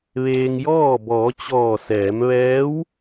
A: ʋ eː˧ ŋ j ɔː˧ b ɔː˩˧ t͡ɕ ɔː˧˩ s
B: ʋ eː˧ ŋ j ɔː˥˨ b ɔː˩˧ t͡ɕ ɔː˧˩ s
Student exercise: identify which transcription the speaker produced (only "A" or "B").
B